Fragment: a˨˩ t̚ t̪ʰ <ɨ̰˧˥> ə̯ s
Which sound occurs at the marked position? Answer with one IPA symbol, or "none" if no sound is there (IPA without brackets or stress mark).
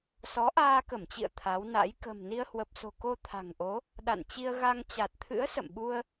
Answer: ɨ̰˧˥